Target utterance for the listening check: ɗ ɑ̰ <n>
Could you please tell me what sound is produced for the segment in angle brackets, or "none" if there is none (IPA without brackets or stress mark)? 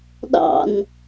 n